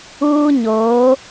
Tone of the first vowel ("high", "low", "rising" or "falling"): high